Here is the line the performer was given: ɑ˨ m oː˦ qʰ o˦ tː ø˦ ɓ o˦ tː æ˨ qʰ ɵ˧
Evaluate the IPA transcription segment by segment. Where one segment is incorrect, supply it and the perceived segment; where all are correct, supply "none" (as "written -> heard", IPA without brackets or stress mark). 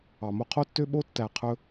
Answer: oː˦ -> o˦